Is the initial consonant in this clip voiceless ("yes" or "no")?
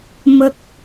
no